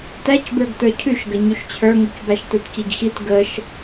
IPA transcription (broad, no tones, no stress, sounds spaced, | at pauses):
t æ c b ə˞ ɡ t ə˞ cʰ ʉ ʃ ɡ ə ɲ ʉ ʃ t͡ɕʰ ə˞ ŋ ʉ c b æ ʃ t ə˞ t c i ɡ x i t ɡ ə ʃ